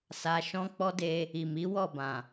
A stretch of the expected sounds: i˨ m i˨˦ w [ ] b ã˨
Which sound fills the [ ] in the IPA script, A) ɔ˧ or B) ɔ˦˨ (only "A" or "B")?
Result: B